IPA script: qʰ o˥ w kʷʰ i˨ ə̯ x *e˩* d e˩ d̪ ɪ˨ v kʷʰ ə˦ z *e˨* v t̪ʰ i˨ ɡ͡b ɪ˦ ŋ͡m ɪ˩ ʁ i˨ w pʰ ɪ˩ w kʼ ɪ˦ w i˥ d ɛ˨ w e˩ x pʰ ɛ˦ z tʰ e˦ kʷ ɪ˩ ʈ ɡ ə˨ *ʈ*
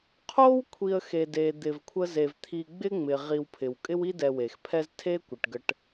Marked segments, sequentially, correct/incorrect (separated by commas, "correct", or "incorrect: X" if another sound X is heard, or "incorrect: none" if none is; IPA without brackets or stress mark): correct, correct, correct